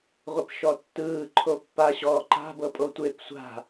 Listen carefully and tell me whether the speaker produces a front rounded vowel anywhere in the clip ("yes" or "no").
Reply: no